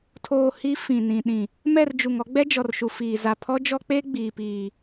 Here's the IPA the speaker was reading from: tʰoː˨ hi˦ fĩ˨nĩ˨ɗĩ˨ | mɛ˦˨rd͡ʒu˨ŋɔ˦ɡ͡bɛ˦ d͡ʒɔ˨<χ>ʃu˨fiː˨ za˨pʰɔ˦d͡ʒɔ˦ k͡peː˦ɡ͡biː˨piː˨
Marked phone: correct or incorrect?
incorrect: r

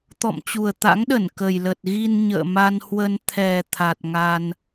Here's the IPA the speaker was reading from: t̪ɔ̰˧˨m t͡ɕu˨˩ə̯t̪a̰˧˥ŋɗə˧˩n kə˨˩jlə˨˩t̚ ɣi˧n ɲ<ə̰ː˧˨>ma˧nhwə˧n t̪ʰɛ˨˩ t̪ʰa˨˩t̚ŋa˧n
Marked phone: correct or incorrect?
correct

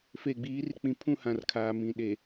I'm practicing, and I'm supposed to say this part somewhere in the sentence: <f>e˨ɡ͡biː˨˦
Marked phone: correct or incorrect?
correct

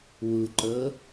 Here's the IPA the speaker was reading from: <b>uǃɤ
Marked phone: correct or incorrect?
incorrect: w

